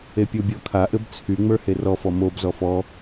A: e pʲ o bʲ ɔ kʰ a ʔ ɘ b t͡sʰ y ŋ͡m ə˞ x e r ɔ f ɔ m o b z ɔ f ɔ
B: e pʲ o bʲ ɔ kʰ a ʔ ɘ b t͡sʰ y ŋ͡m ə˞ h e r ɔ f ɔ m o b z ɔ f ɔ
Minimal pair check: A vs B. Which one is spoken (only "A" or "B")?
B